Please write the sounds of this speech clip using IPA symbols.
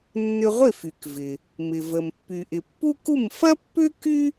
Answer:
nː ʏ˧ ʁʷ ɪ˥˩ f y˩ k v ɪ˩ | m ɪ˩ v ə˩ m pː y˩ ʔ ɪ˩ pː u˥ k u˥˩ m f ɐ˥ pː ʏ˥ k y˥

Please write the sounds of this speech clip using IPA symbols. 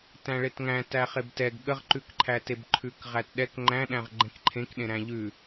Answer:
t æ̃ ɭ e t ŋ æ̃ t æ χ e b t ɛ ɡ ɠ ə ʁ ǃ ʉ k ǃʰ æ t e b ǃʰ ʉ k ʁ æ t ɗ ɛ k ŋ͡ǃ æ̃ ɗ æ̃ ʁ ɡ͡ǃ ɛ̃ k ǃʰ ẽ k ɗ ẽ ɾ æ̃ ʎ ʉ

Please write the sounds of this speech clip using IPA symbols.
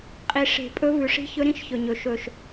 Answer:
qʼ i˨ ʂ e̤˨ pʼ ɵ˦ v ʉ˨ ʂ i̤˦ ç ɵ˦ ɾ ĩ˦ ʃ ç ɵ˨ ɲ ɵ˨ ʃ ɵ˨ ʃ

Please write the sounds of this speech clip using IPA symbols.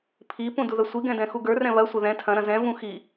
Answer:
pʰ i p ũ d u ð ɐ sʷ i ɡ ɛ̃ d ɛ̃ x u ɡ ə˞ r ɛ̃ β ɐ sʷ ɐ ð ɛ̃ tʰ ɐ̃ ɾ ɐ̃ z ɛ̃ v ũ x i

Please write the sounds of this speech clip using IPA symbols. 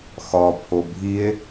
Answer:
x ɒ pʰ o bʱ i e̯

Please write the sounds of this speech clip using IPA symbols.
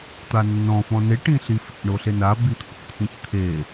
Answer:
t̪ a nː ɔ̃ f ɔ̃ n e ʈ ĩ ɬ i f ḭ ɳ o ɬ e n a b i t̪ʰ o̰ t̪ʰ ĩ ç t̪ʰ e

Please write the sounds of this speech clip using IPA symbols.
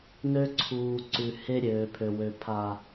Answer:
n ø˦ ǀʰ uː˨ ǀ ʉ˨ h e˦ ɾʲ øː˨ pʰ ø˨ w ø˨ pʰ a˨

